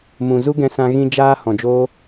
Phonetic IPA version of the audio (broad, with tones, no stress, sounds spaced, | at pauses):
m ũ˨ z u˦ ɡ ɛ̃˧ s ã˧ ɣ ĩ˧ d͡ʒ aː˦ h ɔ̃˨ d͡ʒ oː˦